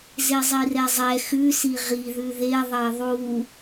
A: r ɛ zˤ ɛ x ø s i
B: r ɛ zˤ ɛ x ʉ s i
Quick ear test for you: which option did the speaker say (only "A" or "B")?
B